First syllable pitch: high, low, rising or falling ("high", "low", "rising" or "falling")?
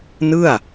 falling